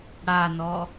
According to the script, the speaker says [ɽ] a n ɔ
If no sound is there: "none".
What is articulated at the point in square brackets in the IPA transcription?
ɽ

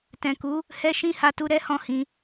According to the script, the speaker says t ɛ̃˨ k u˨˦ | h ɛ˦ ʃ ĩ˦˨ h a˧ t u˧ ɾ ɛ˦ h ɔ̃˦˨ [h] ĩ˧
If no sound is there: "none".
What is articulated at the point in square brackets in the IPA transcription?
h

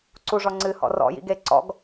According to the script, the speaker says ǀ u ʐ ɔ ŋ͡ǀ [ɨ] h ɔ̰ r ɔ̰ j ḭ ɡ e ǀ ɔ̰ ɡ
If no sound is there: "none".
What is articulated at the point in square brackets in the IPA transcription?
ɨ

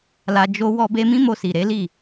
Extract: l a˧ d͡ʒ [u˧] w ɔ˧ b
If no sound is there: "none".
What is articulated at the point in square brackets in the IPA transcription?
o˧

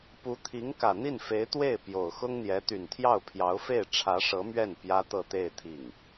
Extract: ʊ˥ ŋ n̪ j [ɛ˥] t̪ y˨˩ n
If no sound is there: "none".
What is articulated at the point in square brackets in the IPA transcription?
ɛ˧˥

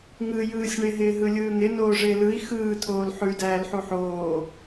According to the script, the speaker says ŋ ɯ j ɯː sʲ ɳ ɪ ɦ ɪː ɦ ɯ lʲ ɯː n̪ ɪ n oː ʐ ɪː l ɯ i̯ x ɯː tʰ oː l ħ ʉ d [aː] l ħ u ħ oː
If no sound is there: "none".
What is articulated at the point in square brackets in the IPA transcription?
æː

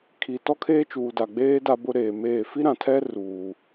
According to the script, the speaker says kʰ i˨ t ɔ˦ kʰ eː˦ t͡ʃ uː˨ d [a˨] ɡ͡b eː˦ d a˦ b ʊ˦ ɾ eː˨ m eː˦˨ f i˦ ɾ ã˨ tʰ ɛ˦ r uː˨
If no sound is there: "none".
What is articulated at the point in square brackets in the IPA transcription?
a˨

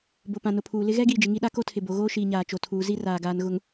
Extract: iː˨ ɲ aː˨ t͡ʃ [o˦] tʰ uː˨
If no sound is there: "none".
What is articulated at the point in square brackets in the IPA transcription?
o˨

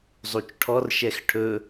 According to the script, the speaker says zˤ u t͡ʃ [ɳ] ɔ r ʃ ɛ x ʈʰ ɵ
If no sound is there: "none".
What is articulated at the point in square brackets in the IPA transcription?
ʈʰ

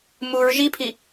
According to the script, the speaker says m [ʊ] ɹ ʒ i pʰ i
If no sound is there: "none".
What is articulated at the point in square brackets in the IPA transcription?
u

